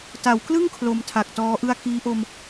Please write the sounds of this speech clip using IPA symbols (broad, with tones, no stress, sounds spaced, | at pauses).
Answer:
t a˩˦ w k l ɯ˥˩ ŋ kʰ l o˧ m tʰ a˨˩ k̚ t ɔː˦˥ ʔ ɯ˥˩ a̯ k iː˦˥ ʔ o˧ m